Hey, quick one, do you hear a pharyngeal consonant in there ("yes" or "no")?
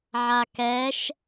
yes